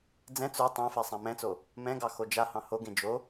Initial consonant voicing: voiced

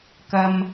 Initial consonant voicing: voiceless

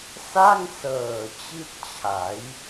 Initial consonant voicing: voiceless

